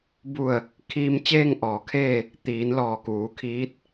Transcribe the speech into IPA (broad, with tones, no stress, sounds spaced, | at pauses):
b u˧˩ ə̯ | kʰ iː˧ m t͡ɕ eː˥˨ ŋ ʔ ɔː˩ kʰ eː˥˨ | t̪ iː˩˧ n l ɔː˧˩ k uː˩˧ kʰ iː˧˥ t̚